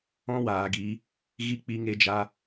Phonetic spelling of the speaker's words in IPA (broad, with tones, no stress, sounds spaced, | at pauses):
ɔ̃˦ w aː˨ ɡ i˨˦ | ɣ i˦ k͡p i˧ ŋ e˦ d͡ʒ a˦